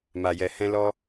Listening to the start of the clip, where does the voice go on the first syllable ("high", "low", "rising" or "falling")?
low